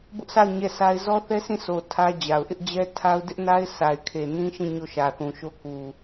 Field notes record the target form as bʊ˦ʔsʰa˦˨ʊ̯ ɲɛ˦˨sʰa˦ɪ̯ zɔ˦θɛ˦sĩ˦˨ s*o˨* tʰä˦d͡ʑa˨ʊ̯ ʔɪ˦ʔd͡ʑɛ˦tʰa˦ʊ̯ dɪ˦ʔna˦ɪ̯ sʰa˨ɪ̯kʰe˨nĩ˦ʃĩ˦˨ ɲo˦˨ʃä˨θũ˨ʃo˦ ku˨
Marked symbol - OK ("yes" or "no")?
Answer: yes